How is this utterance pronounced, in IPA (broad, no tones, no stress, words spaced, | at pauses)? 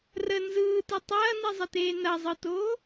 rə nzɯːtɯ tˤɐːnizˤəteː nɐzˤɯtoː